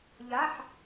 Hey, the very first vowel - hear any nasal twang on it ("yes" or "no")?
no